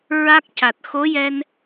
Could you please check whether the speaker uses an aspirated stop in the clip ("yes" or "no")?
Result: no